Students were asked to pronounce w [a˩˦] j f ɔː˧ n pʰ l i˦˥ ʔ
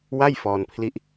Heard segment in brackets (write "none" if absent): a˥˩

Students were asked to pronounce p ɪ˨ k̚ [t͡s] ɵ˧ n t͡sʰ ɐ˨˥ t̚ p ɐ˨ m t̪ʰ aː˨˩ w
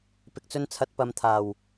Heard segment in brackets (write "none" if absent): t͡s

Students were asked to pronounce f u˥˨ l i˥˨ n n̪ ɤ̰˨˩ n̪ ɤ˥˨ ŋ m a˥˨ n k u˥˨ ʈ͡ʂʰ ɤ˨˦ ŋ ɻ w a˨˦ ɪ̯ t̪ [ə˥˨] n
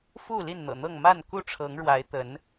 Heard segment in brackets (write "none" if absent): ə˨˦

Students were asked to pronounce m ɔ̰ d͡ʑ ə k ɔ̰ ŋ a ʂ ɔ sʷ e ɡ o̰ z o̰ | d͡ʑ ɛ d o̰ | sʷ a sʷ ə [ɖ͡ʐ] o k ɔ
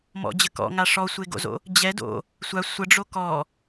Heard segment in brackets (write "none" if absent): ɖ͡ʐ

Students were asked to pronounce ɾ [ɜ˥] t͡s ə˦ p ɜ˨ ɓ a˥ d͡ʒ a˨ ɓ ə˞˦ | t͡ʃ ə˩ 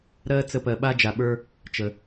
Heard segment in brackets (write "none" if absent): ɜ˥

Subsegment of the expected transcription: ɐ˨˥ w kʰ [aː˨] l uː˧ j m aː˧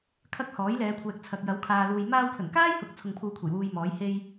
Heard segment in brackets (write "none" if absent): aː˨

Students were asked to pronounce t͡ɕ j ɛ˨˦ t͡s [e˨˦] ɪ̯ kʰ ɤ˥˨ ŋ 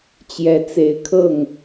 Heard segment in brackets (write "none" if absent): e˨˦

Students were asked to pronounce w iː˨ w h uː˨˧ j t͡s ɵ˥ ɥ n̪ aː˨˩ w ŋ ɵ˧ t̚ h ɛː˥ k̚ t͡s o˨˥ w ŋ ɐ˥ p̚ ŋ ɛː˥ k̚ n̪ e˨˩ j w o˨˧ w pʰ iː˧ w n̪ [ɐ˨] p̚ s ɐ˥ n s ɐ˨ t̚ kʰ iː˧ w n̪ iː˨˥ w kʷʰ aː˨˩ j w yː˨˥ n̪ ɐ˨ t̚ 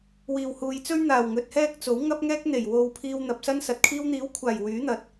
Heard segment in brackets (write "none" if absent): ɐ˨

